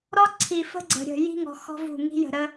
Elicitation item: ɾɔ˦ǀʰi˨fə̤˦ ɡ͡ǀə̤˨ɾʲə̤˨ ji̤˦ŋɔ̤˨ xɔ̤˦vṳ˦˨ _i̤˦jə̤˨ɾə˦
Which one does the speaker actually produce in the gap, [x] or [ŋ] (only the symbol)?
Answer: ŋ